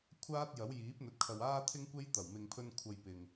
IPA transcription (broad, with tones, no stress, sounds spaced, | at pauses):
kʷʰ aː˥ t̚ j ɐ˨˥ w j iː˨˥ p̚ n̪ ɵ˨˥ t̚ kʰ ɐ˨ w aː˥ t̪ʰ ɪ˥ ŋ kʷ e˥ j t̪ ɐ˨˩ w m ɪ˨ ŋ pʰ ɵ˧ n kʷʰ ɐ˨ j p ɪ˨ ŋ